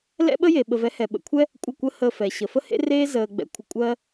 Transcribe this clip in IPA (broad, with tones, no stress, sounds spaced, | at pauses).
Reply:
l ɛ̰˦ ɓ ə˦ j e˨ ɓ ə˨ v ɛ˨˦ h ɛ˨ ɓ ə̰˨ kʷʰ ɛ˦ | kʷʼ ə˦˨ kʷ ə˦ h əː˧ f ɛ˨ ɕ ə˨ f ə˦ h ḛ˦ r eː˦ z əː˧ ɡ͡b ɛ̰˧ kʷʰ ə˧ kʷʼ ɜ˦